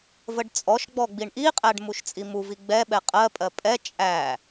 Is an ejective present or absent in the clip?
present